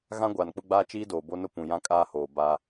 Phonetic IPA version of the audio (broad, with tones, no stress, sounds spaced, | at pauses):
ɣ ã˦ ɡʷ aː˨ n k͡p ʊ˦ ɡ͡b aː˦ t͡ʃ iː˦ d oː˨ b o˦ n ʊ˦ p ũ˨ j ã˦ kʼ aː˦ h oː˨ b a˦